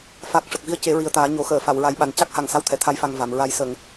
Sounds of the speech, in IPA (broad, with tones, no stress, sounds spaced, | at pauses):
f a˨˩ k̚ ʂ ə˨˩ k̚ v i˧ ə̯ c e˨˩˦ ɹ i˨˩ ə̯ t̪ aː˨˩˦ ɲ o˨˩˦ x əː˨˩˨ f a˨˩˨ w ɹ a˨˩˦ j ɓ a˨˩ n c a˦˥ k̚ h a˨˩ ŋ s a˧ w t̪ʰ ɛ˨˩˨ t̪ʰ a˧˥ j f a˨˩ ŋ v a˨˩˨ m ɹ a˧ j s ə˨˩˨ ŋ